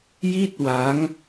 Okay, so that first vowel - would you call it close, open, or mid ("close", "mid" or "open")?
close